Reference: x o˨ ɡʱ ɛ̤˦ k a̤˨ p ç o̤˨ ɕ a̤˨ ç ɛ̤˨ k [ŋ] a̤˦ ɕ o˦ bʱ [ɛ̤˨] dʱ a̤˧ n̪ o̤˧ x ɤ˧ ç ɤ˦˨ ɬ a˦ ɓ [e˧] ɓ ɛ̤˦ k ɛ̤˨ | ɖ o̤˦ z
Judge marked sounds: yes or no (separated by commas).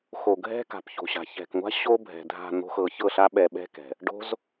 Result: no, yes, no